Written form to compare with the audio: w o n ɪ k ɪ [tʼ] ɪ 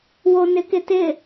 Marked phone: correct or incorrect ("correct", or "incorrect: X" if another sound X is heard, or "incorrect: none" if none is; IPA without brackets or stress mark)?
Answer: incorrect: t